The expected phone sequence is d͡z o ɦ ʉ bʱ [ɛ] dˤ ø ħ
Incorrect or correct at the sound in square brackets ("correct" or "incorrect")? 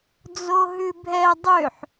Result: correct